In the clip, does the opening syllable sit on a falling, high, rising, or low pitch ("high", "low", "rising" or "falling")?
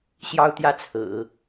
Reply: high